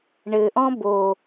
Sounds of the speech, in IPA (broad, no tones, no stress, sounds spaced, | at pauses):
ɳ ɘ ʔ ɔ̃ b o